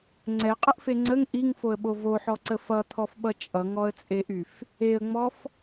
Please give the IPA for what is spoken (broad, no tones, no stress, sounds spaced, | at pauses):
ŋ͡ǀ ɛ qʼ ə ʔ f e ŋ͡ǀ ə ŋ ʔ i ŋ f o ə̯ ɓ o v o ħ ɔ ǀ ə f ʌ t̪ʰ ɔ f ɓ ʌ t͡ʃʼ ʌ ŋ ɔ ə̯ t͡sʼ e ʔ y f | e ə̯ ŋ͡m ɔ f